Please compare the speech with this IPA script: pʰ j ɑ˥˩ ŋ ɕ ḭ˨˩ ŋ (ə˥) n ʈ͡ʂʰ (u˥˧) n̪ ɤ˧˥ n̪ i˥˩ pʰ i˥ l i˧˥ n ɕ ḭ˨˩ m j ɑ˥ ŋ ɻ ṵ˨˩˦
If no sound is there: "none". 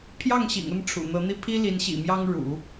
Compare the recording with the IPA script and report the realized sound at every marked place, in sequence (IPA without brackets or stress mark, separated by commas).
ə˥˩, ṵ˨˩